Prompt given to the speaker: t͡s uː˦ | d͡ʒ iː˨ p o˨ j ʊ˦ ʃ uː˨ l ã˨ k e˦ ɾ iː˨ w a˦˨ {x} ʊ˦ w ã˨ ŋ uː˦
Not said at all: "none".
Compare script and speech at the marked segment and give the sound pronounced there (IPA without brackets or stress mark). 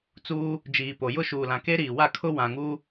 kʰ